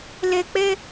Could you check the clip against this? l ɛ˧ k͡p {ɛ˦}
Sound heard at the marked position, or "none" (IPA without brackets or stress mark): ɛ˦